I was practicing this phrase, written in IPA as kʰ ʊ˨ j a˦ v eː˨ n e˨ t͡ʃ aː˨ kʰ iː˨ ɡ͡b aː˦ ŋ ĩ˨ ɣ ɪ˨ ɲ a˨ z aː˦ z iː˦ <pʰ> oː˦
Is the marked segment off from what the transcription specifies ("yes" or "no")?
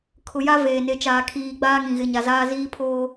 no